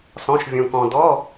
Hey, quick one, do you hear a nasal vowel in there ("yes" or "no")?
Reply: yes